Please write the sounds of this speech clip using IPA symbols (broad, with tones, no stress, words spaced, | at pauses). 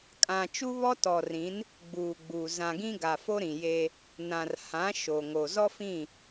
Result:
kʼã˨ t͡ʃu˦βɔ˦tɔ˨rĩ˨˦n | ɡ͡buː˨ɡ͡buː˨ zã˨ɡĩ˦ ɡa˨fo˦ɾĩ˨ je˦ | nã˨rhã˨˦ ʃo˨ŋo˨ zɔ˦fĩ˦˨